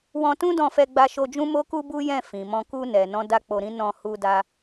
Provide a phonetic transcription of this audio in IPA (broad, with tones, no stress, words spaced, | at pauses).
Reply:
wɔ̃˧tũ˦ dɔ̃˧fɛ˧ɡ͡ba˧ʃo˧ d͡ʒũ˦mo˦ku˦ bu˦jɛ̃˦˨ fĩ˨mɔ̃˧ ku˧ nɛ˨nɔ̃˧ da˦k͡po˧ ɾĩ˦ nɔ̃˧hu˧da˧